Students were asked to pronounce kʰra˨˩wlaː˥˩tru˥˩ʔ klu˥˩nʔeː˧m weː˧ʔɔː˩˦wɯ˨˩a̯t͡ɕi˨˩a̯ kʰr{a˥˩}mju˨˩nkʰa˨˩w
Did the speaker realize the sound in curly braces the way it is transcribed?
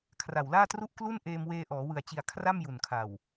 yes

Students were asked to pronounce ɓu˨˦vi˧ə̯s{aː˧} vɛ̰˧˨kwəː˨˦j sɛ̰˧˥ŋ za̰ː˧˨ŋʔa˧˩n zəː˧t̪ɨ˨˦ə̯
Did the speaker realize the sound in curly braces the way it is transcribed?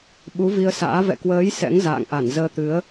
no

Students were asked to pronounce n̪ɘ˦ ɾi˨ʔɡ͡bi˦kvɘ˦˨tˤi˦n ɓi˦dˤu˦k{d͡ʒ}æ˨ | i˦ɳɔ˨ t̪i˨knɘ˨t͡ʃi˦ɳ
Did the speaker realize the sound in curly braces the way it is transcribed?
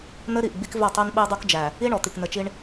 yes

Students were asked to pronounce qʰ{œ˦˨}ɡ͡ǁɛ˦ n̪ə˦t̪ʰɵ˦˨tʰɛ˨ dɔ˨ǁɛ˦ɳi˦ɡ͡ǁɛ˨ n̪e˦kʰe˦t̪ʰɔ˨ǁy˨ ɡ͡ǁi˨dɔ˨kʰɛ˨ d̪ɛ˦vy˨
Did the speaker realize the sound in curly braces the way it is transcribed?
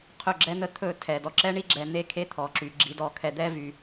no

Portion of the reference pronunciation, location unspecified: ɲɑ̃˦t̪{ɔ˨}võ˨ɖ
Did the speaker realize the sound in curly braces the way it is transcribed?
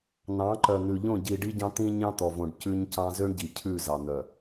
yes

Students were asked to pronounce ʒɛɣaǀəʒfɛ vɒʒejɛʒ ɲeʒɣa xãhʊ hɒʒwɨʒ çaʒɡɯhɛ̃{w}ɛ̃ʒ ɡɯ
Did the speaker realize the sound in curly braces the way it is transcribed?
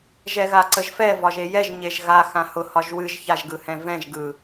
no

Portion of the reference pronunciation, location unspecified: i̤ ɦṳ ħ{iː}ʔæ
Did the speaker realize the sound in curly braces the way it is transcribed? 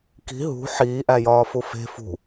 yes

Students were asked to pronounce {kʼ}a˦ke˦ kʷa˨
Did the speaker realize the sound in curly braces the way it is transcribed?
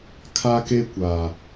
no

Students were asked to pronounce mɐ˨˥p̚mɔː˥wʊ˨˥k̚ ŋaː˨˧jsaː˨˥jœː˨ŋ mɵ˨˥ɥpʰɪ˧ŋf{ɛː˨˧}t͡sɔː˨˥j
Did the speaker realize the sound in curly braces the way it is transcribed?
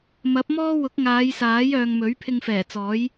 no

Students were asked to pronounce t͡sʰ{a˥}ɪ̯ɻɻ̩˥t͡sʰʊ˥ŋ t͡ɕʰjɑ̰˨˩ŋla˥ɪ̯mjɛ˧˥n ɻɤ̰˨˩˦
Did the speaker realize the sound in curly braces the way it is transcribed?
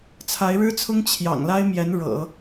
no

